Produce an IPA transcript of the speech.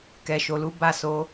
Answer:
k ɛ˨ ʃ o˨ l u˨˦ b a˦˨ s o˨˦

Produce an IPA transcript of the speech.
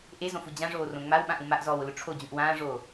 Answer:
ʔ e z õ f u d͡ʑ ã ʐ oː r õ ŋ͡m a w ɓ ã ʔ ũ m a ʔ z ɔː w ʊ l ʊ ʈ͡ʂʰ o d͡ʑ ũ ʔ w ãː ʐ oː

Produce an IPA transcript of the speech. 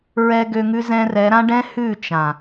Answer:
ɹ ɛ˧ ɡ ø˧ ŋ ʉ˦ z ɛ̃˧ r ɛ˨˦ ɾ ã˦ ɖ ɛ̃˦ h ʉ˦˨ t͡ʃ ã˨

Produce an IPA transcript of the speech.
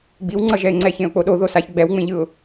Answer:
ɡ͡b i w ŋ͡ǀ ʌ ʒ ɛ ɪ̯ ŋ͡ǀ ɛ ç ẽ ʊ̯ k͡p o ɗ o ð o s a ç ɡ͡b ɛ w ŋ͡m ẽ ʎ ɯ ʊ̯

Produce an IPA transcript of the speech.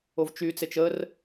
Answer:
o v t͡ʃ y t͡s e t͡ʃ ə r

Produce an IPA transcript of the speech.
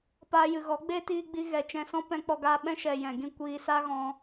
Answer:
p aː˧ j ɨ˨ ɣ ɔ˨˦ ɡ͡b eː˦ t iː˧ ɡ͡b i˧ ɣ ɛ˨ t͡ʃ ɛ̃˧ s ɔ̃˦ p ɛ̃˧ k͡p ɔ˧ ɡ aː˧ ɓ ɛ̃˦ ʃ ɛ˨ j ɛ̃˨ ɡ ĩ˦ kʷ iː˧ s aː˦ ɣ ɔ̃˧

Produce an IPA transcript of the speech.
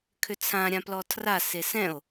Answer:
kʰ ʏ t͡sʰ ã ɾʲ ã p l ɔ tʰ r a s e s ɛ̃ o̯

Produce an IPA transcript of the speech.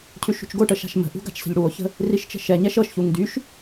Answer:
cʰ ʉ ʃ ṳ t͡ʃ ɡ o ʈ ə ʃ a̤ ʃ m ə̤ ʔ ṳ ɡ a̤ t͡ʃ s ə̤ ʎ ɽ u o̯ ç ə̤ | r i ʃ t͡ʃ ə̤ ʃ ɛ ɲ ɛ ʃ ɤ ʃ ç u ŋ d y ʃ

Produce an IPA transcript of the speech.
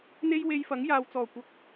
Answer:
n̪ e˥ j w e˧ j f ɐ˨˥ ŋ j aː˨ w t͡s ɔː˨˩ kʷ ɐ˨˥ k̚

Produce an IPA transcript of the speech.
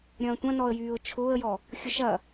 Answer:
ɾʲ ɐ̃ː tʷ ɐ̃ n ɔ ə̯ j yː ʊ̯ t͡ʃʰ ʊː ə̯ j ɔ | xʲ ʊ ʃ ɐ

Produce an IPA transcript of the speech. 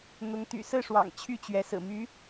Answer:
n̪ ʊ˧˥ ŋ t̪ y̰˨˩ s ɹ̩˥˩ ʂ w ɑ̰˨˩ ŋ t͡ɕʰ y˥˩ t͡ɕ ɥ ɛ˧˥ s ɹ̩˨˩ m y˧˥

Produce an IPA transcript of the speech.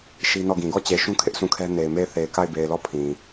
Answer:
ʃ i˦ n ɔ˦˨ ɡ ĩ˨ ɡ ɔ˦˨ t͡ɕ e˨ ʃ ũ˦ kʰ ɪ˦ ʔ s ũ˦˨ kʰ ɛ˦ n e˨ ɪ̯ m e˦˨ ɪ̯ θ e˨ ɪ̯ k a˦˨ ɪ̯ b e˨ ɪ̯ l ɔ˦˨ pʰ ĩ˨

